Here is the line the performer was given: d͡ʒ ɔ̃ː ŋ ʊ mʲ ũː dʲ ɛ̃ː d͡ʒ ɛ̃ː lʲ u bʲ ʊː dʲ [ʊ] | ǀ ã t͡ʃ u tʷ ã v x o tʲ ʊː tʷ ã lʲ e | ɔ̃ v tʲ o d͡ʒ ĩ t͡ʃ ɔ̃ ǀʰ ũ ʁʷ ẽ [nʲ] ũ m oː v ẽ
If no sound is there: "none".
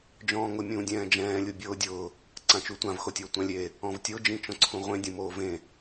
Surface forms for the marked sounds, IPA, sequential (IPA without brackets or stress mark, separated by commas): ʊː, dʲ